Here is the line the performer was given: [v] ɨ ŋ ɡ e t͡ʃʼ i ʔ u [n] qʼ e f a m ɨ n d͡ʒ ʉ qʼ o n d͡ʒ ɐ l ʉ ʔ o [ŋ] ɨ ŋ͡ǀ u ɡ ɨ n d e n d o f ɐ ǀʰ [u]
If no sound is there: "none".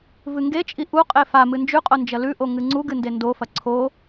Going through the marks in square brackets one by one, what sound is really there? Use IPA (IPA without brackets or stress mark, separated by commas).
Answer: v, none, ŋ, o